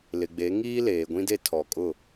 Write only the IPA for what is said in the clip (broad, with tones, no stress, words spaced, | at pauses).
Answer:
lɪ˨ɡ͡be˨˦ ŋiː˦leː˨ɡʷĩ˦de˦ tʰɔ˨kʼʊ˦˨